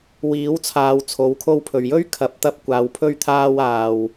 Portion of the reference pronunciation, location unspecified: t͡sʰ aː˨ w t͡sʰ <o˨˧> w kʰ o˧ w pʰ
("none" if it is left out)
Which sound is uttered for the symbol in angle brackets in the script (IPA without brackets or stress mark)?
o˨˥